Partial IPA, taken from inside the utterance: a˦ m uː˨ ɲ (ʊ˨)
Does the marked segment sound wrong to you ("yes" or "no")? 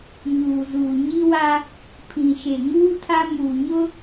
yes